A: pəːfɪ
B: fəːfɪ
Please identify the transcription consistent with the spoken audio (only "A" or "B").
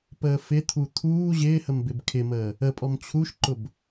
A